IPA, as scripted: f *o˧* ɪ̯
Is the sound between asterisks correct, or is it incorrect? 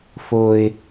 correct